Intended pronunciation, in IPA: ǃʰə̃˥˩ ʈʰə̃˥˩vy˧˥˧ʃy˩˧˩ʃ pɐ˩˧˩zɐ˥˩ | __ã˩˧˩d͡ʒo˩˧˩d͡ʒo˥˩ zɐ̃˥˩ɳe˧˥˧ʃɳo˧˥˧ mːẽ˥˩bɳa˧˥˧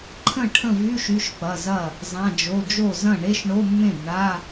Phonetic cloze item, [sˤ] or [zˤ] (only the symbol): zˤ